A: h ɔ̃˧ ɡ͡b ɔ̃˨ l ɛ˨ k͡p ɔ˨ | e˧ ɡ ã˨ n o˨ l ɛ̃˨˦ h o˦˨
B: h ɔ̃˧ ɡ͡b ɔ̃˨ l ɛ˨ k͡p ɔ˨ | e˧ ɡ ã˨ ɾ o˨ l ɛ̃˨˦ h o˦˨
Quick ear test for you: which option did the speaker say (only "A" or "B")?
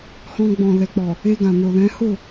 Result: A